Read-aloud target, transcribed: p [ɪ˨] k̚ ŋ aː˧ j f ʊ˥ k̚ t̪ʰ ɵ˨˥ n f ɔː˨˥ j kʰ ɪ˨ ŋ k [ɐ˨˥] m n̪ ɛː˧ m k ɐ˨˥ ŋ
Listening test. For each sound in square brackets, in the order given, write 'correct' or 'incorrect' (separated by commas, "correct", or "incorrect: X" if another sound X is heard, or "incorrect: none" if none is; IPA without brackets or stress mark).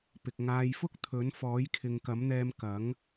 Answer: correct, correct